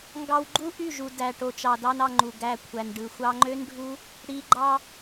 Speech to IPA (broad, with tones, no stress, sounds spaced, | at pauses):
ŋ ɡ ɑ˧ w ɡ͡ǃ u˦ ʔ y˦˨ ʒ u˨ d æ˨ ʈ o˨ t͡ʃ ɑ˨ d ɑ˦ n ɑ˧ ŋ͡ǃ u˨ ɡ æ˧ kʷʰ æ˨ n ɖ ɯ˨ xʷ ɑ˧ ŋ͡ǃ ø˦ n ɖʱ u˦ | ɽ i˨ ɡ͡ǃ ɑ˧